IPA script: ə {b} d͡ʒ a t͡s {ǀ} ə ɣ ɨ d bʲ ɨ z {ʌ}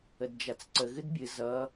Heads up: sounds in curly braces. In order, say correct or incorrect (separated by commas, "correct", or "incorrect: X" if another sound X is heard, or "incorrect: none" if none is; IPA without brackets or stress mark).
incorrect: d, correct, correct